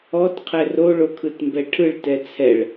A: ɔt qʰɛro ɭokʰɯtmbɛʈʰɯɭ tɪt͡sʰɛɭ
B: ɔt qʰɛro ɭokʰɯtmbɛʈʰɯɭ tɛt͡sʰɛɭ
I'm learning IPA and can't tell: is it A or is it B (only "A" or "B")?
B